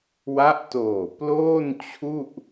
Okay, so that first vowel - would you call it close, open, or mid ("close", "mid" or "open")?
open